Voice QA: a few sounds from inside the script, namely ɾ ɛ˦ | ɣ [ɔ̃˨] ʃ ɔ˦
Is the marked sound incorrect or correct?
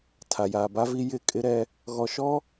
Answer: incorrect